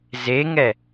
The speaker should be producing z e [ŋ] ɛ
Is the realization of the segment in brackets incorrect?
no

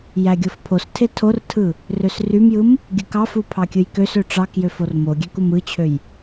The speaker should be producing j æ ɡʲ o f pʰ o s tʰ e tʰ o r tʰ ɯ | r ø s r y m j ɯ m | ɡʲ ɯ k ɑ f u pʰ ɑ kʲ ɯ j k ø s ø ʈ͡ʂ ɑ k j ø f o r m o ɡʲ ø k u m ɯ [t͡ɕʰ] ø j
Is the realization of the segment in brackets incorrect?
no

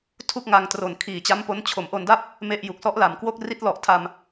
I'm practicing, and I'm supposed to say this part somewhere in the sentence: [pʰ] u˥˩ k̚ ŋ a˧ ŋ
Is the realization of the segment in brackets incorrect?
yes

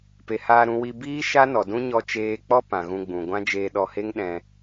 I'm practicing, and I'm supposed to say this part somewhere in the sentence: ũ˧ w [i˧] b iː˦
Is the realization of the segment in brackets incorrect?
no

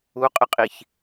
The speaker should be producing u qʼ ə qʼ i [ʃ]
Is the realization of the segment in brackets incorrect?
yes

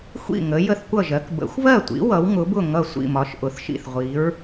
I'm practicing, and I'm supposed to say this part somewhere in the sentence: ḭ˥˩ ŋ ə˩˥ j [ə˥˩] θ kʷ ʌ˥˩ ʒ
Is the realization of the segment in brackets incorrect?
no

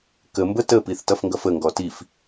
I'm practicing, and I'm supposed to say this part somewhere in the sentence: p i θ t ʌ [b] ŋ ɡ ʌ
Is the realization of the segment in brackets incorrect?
yes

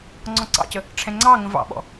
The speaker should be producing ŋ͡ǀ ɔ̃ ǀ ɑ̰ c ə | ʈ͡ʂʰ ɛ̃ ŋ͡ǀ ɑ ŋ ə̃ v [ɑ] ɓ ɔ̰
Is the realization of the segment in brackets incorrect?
yes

